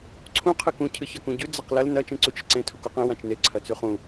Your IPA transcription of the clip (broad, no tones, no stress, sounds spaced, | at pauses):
ǀʰ ũ qʰ ɨ k ũ cʰ ɨ ç ɐ k ũ ɟ ʉ d͡z ɐ q l ɐ l n ɐ t͡ʃ ẽ ǀ u t͡ʃ ɨ ǀ ẽ tʰ u k o q ẽ w ã t͡ʃ n e ǀʰ ɐ t͡s ʉ χ ũ